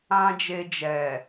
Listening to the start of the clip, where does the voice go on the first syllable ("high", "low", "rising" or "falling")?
high